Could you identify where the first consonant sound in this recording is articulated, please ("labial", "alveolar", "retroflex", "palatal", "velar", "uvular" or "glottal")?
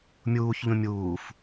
labial